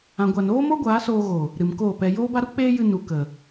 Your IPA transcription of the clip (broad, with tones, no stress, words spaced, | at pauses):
ã˨ɡʷa˨n oː˦mo˦ɡʷaː˨˦ soː˧ɣo˨ | ɾɨ˨mkoː˦˨pɛ˧ joː˦ba˦ɾu˦ k͡peː˦jɨ˧ nu˨ kə˨